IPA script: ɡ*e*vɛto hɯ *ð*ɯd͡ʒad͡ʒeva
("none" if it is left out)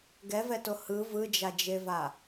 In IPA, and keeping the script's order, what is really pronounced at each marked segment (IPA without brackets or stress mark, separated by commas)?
ɛ, v